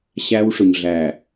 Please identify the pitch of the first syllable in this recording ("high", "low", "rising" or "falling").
high